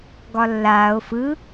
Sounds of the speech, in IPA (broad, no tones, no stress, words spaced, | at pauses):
ɡɒlːaːo̯ fɯ